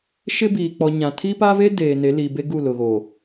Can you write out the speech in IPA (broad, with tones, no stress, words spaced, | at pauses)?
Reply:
ʃɪ˦biː˨ k͡pɔ˨ ɲã˨ tʰi˦pa˦ve˦ deː˨ne˨˦li˨be˦ ɡu˦˨lʊ˨ɣo˨